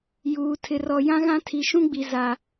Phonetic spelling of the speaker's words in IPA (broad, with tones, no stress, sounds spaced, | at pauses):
j uː˨ tʰ ɪ˨ r ɔ˨ j ã˦ ɣ ã˦ tʰ i˨ ʃ ũ˦ ɡ͡b i˨ z a˨